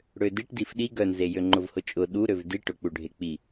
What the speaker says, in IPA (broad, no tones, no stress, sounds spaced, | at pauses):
ɽ ø d i ʈ d i f ɗ i ɡ œ n z e j ø ŋ͡ǃ ʊ v h ʊ t͡ʃʼ ʊ ɗ u ɾ ø v d i ʈ ʊ k͡p u ɖʱ e k͡p i